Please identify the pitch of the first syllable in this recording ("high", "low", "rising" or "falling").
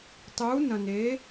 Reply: rising